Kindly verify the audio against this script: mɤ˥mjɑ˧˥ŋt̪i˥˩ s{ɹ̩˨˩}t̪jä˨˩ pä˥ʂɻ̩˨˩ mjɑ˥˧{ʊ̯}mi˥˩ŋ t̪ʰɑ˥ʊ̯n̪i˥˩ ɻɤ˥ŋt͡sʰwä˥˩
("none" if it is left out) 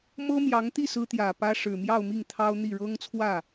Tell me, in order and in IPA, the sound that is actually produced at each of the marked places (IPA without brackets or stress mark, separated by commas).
ɹ̩˥, ʊ̯